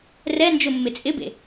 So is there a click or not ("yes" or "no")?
no